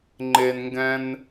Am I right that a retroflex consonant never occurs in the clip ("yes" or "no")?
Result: yes